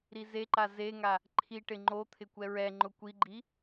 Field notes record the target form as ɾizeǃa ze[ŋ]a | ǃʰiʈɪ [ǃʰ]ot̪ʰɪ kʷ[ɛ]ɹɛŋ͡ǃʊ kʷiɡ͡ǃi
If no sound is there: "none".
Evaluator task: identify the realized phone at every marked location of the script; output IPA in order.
ŋ, ŋ͡ǃ, ɛ

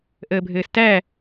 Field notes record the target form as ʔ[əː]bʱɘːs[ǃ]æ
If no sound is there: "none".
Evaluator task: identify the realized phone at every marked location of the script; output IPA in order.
əː, t

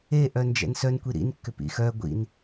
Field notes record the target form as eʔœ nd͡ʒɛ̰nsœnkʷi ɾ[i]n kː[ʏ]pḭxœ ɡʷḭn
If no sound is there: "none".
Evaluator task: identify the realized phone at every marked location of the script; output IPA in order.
ḭ, ʏ

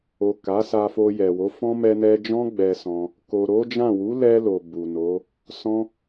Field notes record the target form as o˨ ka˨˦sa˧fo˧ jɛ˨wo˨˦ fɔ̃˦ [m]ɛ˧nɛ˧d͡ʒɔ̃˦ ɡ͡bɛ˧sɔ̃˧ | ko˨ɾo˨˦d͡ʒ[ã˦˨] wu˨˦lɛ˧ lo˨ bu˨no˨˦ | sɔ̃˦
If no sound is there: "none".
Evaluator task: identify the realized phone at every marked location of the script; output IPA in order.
m, ã˦˨

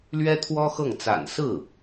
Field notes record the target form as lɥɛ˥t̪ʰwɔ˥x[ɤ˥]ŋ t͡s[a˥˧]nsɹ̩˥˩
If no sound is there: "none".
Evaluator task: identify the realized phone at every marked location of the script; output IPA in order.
ɤ˥˩, a̰˨˩

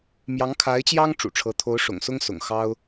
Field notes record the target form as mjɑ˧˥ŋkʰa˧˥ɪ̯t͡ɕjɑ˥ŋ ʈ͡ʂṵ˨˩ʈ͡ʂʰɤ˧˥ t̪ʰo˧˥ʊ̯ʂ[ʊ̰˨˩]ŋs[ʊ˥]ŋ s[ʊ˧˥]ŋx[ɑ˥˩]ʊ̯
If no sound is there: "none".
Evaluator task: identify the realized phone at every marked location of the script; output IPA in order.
ʊ̰˨˩, ʊ˥, ʊ̰˨˩, ɑ˥

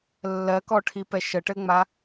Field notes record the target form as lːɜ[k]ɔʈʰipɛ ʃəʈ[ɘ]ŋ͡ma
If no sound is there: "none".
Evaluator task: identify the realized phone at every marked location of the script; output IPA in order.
k, ɘ

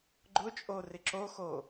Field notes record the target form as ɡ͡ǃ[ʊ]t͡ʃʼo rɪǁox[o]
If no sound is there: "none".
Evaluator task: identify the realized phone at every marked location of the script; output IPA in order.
ʊ, o

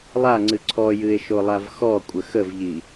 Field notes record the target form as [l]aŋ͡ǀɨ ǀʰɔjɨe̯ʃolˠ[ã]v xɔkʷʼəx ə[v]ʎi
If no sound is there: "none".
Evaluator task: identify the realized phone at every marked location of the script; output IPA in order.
lˠ, a, v

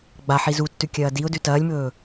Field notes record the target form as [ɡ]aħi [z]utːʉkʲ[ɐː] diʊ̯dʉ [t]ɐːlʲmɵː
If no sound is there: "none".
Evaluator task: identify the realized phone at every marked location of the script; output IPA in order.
ɡ͡b, z, ɐː, t

